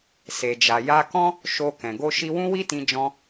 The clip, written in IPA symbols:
se˨d͡ʒa˨ ja˧kɔ̃˦ | ʃo˧ kɛ̃˨ɡo˧ ʃi˧wũ˦wi˦tĩ˧ d͡ʒɔ̃˦

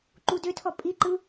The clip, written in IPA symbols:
ǃudøtʰɔ pʼiǃɯ

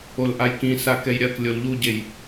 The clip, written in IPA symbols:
olʔajkĩ sakɛjɾʲɐk lʲolʎuɟej

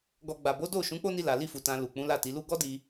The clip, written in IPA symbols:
ɡɔ˧ ɡ͡ba˨bo˨˦ do˦˨ ʃũ˨˦k͡po˦ni˧la˨ li˧fu˨ tã˨ lu˨ k͡pũ˨˦la˦˨ti˨˦lu˦ ɡɔ˦di˧

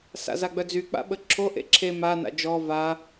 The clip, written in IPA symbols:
sa̰zaɡ͡bœd͡zy k͡pa̰ɓəǁʰo ʔḛǁʰe ma na̰d͡ʒɔ va

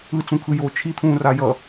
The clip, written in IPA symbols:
ɯt͡sũkʰɯjoː t͡ʃʰit̪ʰũːra jʌ

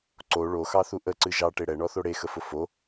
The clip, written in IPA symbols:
ǀo ɭoxɑθu ʔəǀɨ ʒɑʈe ɽɛɳɔθo ɽexəfʊ fo

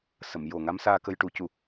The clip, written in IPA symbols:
sə˨˩˨mjo˨˩ ŋa˧˥msaː˧ kə˧jʈu˨˩˦cu˨˩

